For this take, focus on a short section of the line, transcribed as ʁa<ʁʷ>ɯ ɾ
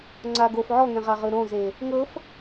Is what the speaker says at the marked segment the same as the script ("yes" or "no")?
no